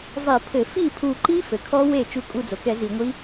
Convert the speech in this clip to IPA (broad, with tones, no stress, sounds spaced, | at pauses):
zˤ i˧˩˧ pʰ ɘ˧˩˧ f i˥˩ pʰ u˧˩ ǃ i˦˥ f ɘ˩ kʰ ɔ˦˥ w e˥˩ t͡ʃ u˧˩ kʼ u˧˩ d͡z o˩ k ɛ˧˩˧ z i˧˩˧ ŋʷ i˦˥